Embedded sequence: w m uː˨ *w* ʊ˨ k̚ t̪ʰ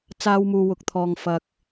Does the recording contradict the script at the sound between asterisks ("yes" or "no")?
no